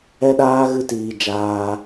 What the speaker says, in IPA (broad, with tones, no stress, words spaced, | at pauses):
ɛ˦ɗaː˦ ɣɨ˦tiː˧ d͡ʒaː˧